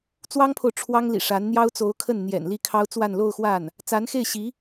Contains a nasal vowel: no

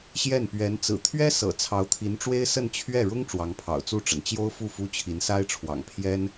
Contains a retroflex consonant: yes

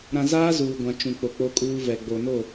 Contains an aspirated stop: no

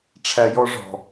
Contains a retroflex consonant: yes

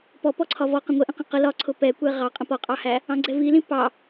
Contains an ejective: yes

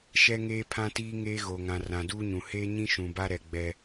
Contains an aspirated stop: yes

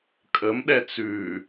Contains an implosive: yes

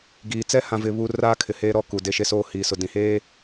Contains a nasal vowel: yes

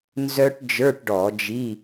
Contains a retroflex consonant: yes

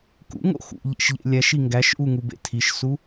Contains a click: no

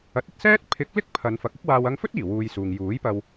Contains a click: no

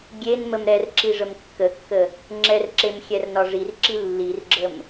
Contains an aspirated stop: no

